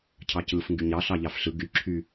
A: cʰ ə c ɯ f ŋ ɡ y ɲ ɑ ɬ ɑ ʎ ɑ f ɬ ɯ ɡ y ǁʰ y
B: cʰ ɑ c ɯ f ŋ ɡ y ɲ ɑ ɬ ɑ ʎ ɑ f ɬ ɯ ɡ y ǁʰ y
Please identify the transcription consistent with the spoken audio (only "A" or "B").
B